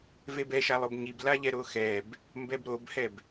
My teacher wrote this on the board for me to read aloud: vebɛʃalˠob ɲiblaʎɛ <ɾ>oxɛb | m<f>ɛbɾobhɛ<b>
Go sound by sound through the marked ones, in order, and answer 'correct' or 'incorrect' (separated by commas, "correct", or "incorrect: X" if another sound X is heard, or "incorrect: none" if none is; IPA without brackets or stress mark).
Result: correct, incorrect: b, correct